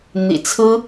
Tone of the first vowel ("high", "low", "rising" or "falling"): low